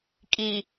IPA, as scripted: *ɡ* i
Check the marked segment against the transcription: incorrect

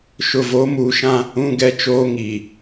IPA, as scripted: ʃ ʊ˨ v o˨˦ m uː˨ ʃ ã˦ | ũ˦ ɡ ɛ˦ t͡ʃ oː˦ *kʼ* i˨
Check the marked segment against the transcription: incorrect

